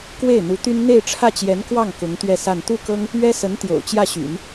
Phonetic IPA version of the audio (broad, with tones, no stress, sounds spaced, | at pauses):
k w e˥˩ ɪ̯ n̪ u˧˥ t̪ y˥ n n̪ e˥˧ ɪ̯ ʈ͡ʂʰ ä˥˩ t͡ɕ j ɛ˧˥ n k w ɑ˥˩ ŋ k ʊ˧˥ ŋ t̪ ɥ ɛ˥˧ s a˥˧ n t̪ u˥˩ k ɤ˥ ŋ | ɥ ɛ˥ s ə˧˥ n t̪ j o̰˨˩ ʊ̯ t͡ɕ j ä˥˩ ɕ y̰˨˩˦ n